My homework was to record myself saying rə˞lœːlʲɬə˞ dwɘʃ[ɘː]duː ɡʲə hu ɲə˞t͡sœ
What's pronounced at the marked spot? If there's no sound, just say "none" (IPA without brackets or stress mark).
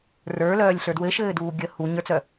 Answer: ɘː